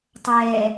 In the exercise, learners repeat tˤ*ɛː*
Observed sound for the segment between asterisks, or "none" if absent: ɛː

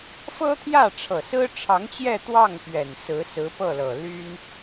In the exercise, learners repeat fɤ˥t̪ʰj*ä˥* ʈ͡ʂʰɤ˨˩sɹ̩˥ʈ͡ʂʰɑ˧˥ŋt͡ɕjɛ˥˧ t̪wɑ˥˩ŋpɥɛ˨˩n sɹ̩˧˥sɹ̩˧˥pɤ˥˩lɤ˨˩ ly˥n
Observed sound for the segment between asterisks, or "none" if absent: ä˥˩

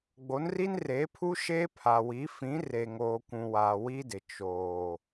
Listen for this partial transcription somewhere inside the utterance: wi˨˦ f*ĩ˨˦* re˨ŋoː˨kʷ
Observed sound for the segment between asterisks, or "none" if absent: ĩ˨˦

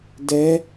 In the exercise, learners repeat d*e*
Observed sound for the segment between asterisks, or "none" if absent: ɛ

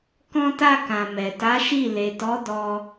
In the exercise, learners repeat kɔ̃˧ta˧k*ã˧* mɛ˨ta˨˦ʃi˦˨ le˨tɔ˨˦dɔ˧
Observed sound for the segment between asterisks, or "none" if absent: ã˨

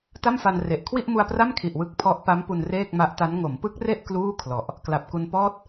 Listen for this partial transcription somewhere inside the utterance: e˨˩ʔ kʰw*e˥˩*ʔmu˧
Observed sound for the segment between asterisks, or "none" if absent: i˥˩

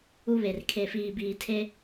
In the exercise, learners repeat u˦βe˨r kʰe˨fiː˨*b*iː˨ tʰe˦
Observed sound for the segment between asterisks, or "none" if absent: b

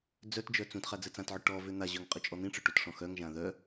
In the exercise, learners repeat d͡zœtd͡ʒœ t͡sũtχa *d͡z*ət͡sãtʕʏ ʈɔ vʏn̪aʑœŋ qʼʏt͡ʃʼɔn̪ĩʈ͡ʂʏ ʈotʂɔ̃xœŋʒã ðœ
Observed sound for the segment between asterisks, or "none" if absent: d͡z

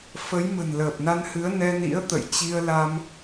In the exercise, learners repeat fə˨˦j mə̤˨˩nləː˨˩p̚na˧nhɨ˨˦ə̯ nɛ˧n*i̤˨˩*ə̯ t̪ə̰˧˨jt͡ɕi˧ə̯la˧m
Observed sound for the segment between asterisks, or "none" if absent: ḭ˧˥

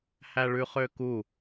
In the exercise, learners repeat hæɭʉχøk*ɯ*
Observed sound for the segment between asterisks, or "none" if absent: u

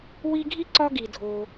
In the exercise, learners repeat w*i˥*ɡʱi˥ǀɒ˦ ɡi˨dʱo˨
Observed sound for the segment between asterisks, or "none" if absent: i˦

